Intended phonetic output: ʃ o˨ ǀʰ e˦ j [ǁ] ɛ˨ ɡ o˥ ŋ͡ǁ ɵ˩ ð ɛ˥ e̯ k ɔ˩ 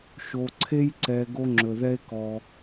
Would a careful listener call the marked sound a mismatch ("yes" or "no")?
yes